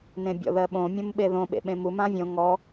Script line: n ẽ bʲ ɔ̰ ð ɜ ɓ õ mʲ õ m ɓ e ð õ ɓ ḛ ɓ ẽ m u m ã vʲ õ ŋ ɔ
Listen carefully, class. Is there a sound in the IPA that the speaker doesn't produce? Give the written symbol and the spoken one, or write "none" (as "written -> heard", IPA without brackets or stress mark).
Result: none